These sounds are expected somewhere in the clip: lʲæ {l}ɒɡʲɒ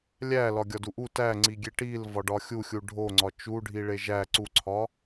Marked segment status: correct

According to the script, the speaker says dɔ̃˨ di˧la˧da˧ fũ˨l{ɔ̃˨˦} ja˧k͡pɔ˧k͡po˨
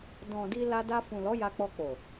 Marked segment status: incorrect: ɔ˨˦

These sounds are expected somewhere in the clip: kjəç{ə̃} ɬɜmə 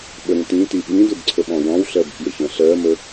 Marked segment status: correct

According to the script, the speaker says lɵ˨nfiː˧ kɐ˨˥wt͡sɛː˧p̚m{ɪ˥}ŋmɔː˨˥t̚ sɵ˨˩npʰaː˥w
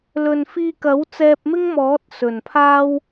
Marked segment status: correct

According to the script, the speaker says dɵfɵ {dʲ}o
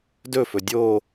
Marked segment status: correct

